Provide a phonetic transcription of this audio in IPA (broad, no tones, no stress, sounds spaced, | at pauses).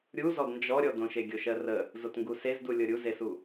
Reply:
ɾʲ u z ɔ d n d͡ʒ ɔ ɾʲ ɔ d õ ʃ e ɡʲ o ʃ ɜ r ə | z o t ŋ ɡ u s e z d u lʲ ɤ ɾʲ u z e s u